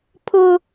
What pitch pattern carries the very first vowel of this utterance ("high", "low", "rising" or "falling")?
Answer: high